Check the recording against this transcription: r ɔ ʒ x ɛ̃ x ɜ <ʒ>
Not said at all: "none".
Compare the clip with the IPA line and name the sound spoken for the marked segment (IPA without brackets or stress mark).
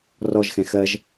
ʒ